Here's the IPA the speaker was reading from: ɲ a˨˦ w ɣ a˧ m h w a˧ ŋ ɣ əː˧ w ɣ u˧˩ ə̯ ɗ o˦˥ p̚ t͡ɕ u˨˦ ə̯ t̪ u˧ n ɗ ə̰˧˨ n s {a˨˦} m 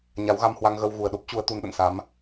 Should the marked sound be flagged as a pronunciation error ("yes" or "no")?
no